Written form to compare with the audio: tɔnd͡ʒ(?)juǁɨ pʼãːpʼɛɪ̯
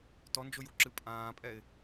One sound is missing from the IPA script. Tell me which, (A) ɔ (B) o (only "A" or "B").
B